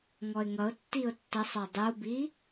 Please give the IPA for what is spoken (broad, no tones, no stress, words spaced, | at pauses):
ŋɔɪ̯ŋʌʊ̯ tːiʊ̯tːʌsˤə˞ dˤubi